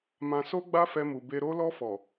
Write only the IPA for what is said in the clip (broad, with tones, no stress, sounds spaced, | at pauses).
m ã˧ s o˦ ɡ͡b a˦ f ɛ˧ m u˨ b e˧ ɾ o˧ l ɔ˧ f ɔ˨